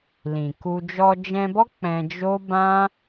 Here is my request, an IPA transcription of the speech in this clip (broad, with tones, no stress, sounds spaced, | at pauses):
l ĩ˨ k u˧ d͡ʒ ɔ˧ d͡ʒ ɛ̃˧ b ɔ˦ k͡p ɛ̃˧ d͡ʒ o˦ b ã˦